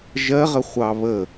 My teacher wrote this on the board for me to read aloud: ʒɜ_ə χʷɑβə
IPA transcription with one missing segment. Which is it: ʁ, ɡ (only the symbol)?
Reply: ʁ